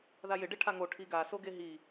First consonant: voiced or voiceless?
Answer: voiced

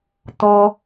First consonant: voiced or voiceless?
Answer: voiceless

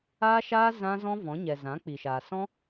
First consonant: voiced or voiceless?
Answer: voiceless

